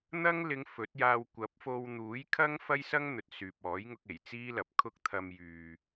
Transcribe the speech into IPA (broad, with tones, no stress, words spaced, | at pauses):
n̪ɐ˥ŋ lɪ˨˧ŋ fɵ˨˥t̚jaː˧w kʷɐ˨˥p̚fo˧w n̪uː˨˥j kʰɐ˥ŋ fɐ˥jsɐ˥ŋ n̪ɵ˨t̚ syː˨p̚ɔː˨˥jŋʊ˧k̚ e˨˩jt͡siː˥lɐ˨p̚ kʰʊ˥k̚t̪ʰɐ˧m jyː˨